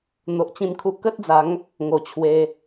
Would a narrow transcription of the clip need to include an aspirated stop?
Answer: yes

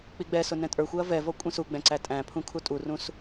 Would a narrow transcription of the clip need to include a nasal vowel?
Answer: yes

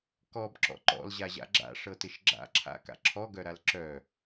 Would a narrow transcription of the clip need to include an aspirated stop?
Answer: yes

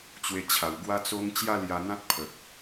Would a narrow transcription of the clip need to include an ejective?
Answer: no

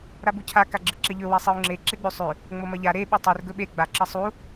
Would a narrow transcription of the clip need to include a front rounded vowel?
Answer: no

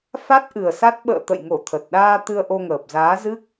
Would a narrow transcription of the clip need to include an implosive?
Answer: yes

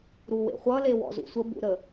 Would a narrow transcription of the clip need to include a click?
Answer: no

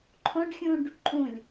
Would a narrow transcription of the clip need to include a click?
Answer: yes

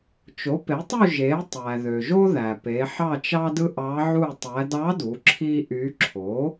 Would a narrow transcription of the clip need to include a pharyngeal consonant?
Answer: yes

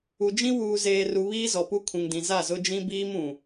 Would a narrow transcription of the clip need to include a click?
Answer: no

